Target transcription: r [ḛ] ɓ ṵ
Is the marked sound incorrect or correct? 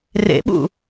correct